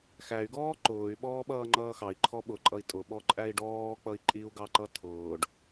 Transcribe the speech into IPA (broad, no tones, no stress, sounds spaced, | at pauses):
x æ y̯ ɡ ɔː ǃ ʊː y̯ ɓ ɔː ɓ ʌː ŋ͡ǃ ʌː x ɑ i̯ ǃʰ ɔ ɓ ʊ ǃʼ ʌ i̯ tʼ ʊ ɓ ɔ ǃʼ æ i̯ ɖ ɔː k͡p ʌ i̯ ǃʼ i u̯ ɡ ɑ ǃ ʌ tʰ ʊː ɖ